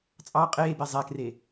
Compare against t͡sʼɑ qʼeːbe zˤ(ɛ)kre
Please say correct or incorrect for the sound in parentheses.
correct